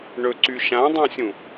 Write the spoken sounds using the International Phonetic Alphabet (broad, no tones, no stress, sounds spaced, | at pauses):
ɳ ɵ ǀ y ʃ ã dˤ ũ sʲ ũ